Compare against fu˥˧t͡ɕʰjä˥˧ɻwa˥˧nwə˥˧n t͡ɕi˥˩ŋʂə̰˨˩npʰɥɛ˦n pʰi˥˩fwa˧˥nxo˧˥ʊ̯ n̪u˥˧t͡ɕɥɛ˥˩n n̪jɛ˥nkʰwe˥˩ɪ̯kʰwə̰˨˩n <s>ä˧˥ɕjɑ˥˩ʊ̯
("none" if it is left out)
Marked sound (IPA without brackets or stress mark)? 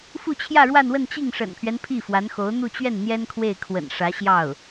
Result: ʂ